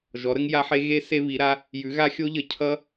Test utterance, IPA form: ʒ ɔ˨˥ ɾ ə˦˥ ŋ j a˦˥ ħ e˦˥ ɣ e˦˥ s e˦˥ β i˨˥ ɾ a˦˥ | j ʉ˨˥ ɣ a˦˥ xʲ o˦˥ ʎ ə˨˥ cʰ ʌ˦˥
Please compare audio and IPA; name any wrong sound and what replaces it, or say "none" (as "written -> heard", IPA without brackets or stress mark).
none